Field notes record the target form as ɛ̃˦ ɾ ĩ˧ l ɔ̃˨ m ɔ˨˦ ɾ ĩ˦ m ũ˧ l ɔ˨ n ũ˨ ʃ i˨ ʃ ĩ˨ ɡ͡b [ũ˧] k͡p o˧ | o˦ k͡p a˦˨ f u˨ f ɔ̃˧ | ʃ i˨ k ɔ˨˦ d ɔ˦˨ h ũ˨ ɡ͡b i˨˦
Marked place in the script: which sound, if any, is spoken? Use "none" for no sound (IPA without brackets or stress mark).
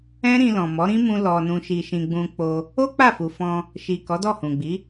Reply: ũ˧